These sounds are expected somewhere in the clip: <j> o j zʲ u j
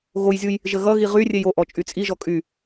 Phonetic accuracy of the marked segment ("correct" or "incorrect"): incorrect